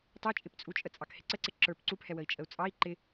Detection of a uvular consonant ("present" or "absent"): absent